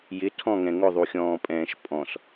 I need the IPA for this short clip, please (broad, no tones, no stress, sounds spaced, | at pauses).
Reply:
j ɪ tʰ ɔ̃ ŋ ɛ̃ ŋ ʊ ðˤ u xʲ ɔ̃ː pʼ ɛ̃ː ʃ pʼ ɔ̃ s